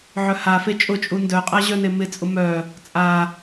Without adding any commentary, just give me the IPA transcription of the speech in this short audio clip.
ʕœhafe t͡ʃʼʊt͡ʃʼu ndœqʼa ʑœnemɪt͡sʼʊ mœ | t͡sʼa

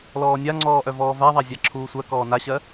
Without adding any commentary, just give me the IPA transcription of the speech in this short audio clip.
lɔːnʲaŋ͡ǀɔːʔœ vɔːvaðˤa zʲɑǁʰuːsʷɜ kɔːnaɕɜ

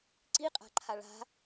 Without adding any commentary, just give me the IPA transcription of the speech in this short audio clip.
ǀiqʼa̤ǃʰa ɭa̤

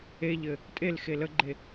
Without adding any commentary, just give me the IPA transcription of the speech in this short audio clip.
eʎɘ | tʼelxe ləɡ͡ǃe

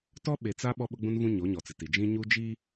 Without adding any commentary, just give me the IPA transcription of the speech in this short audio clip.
tɔ˦ɓe˨t͡sa˦ ɓɔ˦ɓʊ˦ɡ͡bũ˦nvũ˦ ɲo˨˦ɲɔ˨t͡sɪ˨ti˨ d͡ʒĩ˦ ɲu˦d͡ʒi˦

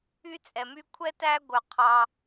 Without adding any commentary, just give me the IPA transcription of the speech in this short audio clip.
y˦t͡sʼɛ˩my˦ kʷʰɛ˥tæ˦ɡʷœ˩ qʰɑ˨

